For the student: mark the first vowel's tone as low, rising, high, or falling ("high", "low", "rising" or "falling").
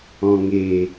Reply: low